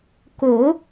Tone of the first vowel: rising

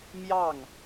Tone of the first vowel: falling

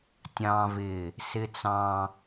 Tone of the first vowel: high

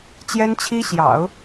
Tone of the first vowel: high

